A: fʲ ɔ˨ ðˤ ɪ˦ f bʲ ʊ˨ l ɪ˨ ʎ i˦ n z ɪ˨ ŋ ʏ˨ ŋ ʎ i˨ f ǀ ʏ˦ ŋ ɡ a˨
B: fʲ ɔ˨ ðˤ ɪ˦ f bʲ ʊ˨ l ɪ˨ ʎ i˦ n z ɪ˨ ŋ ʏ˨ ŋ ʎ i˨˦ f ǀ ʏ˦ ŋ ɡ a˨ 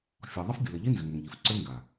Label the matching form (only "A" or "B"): A